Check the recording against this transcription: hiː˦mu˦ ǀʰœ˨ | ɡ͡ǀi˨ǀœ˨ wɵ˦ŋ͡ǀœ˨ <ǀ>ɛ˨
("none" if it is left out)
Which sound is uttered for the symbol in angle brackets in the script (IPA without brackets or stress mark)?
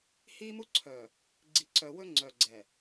ɡ͡ǀ